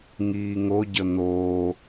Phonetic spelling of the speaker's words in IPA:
ŋ iː ŋ o ɟ ə n̪ oː

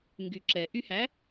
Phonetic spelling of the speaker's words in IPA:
ŋ ɡ y ǁ ɛ ʔ y h æ

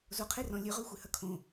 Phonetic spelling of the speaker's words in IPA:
z o qʰ e r ɔ̃ lʲ ø ʁ ø xʷ e h ɐ kʰ õ

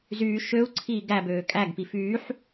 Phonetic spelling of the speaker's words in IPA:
z yː ʃ ø u̯ ǀʰ iː ɡ æ b øː kʼ æ ɡ p i f yː ħ

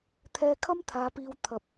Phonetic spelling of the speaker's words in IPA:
t̪ʰ ɛː˧ kʰ ɐ˥ m t̪ʰ aː˨˧ p iː˧ w t̪ʰ ɐ˧ p̚

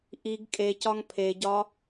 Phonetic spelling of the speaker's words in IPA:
ʔ i ɡ kʼ e c ɒ ŋ pʰ e ɟ ɒ

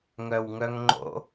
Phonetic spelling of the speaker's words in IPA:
ŋ œ w ŋ œ ŋ ŋ͡ǃ o̰

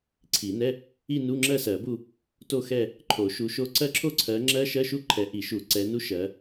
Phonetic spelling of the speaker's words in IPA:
ǀʰ i˨˩˦ n ɛ˧˥˧ | i˥˧ n u˧˥˧ ŋ͡ǁ ɜ˥˧ s ɜ˨˩˦ b u˥˧ | t o˥˧ x ɛ˥˧ | ǃʰ o˨˩˦ ʃ u˨˦ ʃ o˦˥ ǀ ɜ˦˥ ǁʰ o˥˧ ǀʰ ɜ˨˦ ŋ͡ǁ ɜ˦˥ ʃ ɜ˧˥˧ ʃ u˥˧ ǃʰ ɛ˨˦ ʔ i˨˩˦ ʃ u˨˩˦ ǀ ɛ˨˦ n u˦˥ ʃ ɜ˨˦

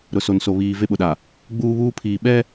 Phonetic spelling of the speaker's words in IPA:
ɾ ʊ˨ s o˨ n s o˨ β iː˨ v e˦ ɓ ʊ˨ ɗ a˨ | ɡ͡b uː˦ β uː˦ pʰ iː˨ ɓ ɛ˦

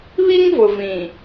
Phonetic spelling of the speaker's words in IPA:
β i˦ ŋ v ʊ˨ v ĩ˨

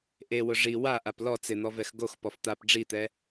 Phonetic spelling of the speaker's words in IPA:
ʔ e w ʊ ʐ i w a ʔ a p l ɔ t͡s ɪ n̪ ɔ v ɛ x ɡ o x p ɔ f t̪ a p ɖ͡ʐ i t̪ ɛ

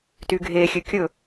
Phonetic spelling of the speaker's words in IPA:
t y ɡʱ e xʲ ø kʲ ɵ

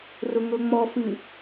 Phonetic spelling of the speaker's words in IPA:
r ʊ ŋ ɤ ŋ͡m ɔ f ɨ

